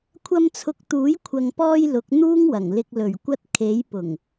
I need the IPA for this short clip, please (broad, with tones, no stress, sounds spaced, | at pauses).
kʷʰ ɐ˧ m t͡sʰ ʊ˨˥ k̚ t̪ uː˨˥ j kʷʰ ɐ˨ ŋ p ɔː˧ j l ʊ˨˥ k̚ n̪ uː˥ ŋ w ɐ˨˩ ŋ l ɪ˧ k̚ l ɵ˨˩ ɥ kʷ ɐ˧ t̚ kʰ e˨˥ j p ʊ˨˩ ŋ